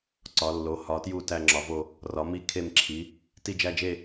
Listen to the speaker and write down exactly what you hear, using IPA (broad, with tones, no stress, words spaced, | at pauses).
ǀɒ˨˥lːo˨˥ hɒ˨˥tju˥˧ tæ˥˧ŋ͡ǁɒ˨˥vo˥˧ | rɒ˨˥mi˥˧ kʰe˥˧mǁʰi˨˥ | ti˥˧d͡ʒæ˥˧d͡ʒe˥˧